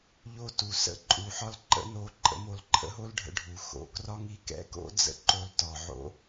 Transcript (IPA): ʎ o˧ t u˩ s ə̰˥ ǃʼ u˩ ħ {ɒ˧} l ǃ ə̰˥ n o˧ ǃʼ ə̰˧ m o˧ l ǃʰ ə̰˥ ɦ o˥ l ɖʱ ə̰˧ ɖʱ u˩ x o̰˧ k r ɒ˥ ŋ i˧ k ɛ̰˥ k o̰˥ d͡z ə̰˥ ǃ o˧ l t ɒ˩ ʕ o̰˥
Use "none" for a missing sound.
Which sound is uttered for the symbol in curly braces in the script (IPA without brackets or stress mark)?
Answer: ɒ˥